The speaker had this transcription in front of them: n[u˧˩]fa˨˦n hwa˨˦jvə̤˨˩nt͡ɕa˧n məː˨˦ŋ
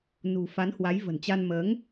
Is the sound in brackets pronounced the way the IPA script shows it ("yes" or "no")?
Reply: no